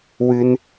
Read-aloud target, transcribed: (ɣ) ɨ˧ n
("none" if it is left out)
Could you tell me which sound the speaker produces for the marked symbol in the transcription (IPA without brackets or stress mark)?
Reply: w